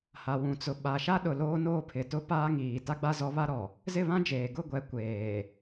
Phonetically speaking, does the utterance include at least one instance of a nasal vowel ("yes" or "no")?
yes